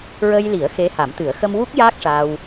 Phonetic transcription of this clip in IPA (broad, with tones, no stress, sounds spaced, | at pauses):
ɹ ə˧ j l i˨˩˦ ə̯ x e˧˥ h a˨˩˦ m t̪ ɨ˨˩˦ ə̯ x ə˧ m w u˦˥ k̚ j aː˦˥ k̚ ʂ aː˧ w